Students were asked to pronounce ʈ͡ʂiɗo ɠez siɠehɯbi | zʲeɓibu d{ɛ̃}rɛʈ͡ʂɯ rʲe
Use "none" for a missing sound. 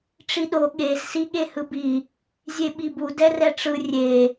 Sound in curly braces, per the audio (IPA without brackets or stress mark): ɛ